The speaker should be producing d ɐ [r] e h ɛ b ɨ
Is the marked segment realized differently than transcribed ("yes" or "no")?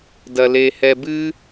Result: yes